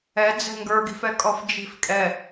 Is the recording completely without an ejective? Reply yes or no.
no